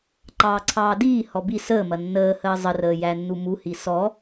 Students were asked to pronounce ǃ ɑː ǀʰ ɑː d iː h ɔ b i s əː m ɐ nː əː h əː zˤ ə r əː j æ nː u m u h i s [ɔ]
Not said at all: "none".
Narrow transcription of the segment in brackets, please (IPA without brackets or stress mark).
ɔ